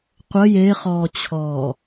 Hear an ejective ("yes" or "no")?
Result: no